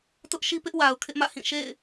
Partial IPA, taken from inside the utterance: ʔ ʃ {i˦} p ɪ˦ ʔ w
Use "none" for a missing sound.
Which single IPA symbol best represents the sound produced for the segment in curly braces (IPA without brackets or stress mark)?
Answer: i˦